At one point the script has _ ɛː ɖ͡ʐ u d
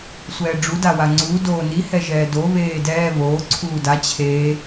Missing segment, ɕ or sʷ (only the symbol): sʷ